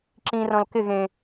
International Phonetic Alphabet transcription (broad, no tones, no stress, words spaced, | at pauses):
ǁĩrɔ̃l kɪɣẽ